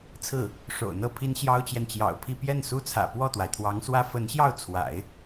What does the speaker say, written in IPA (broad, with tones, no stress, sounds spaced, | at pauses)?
t͡sʰ ɹ̩˥˩ | ʂ o̰˨˩ ʊ̯ n̪ ɤ˥˩ pʰ i˥ n ɕ j ɑ˥ ʊ̯ t͡ɕ j ɛ˨ n t͡ɕ j ɑ̰˨˩ ʊ̯ pʰ i˥˧ p j ɛ˥˩ n s u˥ t͡sʰ ä̰˨˩ p w ɔ˥˩ t̪ w a˩ ɪ̯ t̪ʰ w ɑ˧˥ ŋ s w ä˥ f ə˧˥ n ɕ j ɑ˥˩ ʊ̯ t͡sʰ w a̰˨˩˦ ɪ̯